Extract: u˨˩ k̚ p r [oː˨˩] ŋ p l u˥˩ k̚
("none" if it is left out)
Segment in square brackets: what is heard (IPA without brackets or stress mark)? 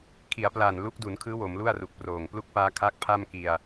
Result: oː˨˩